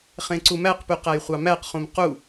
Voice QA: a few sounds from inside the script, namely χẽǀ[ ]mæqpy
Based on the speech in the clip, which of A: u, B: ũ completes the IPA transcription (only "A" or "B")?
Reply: A